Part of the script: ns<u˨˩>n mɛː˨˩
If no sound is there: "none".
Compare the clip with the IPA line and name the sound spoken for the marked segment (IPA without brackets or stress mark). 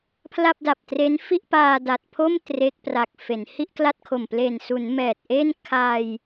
u˩˦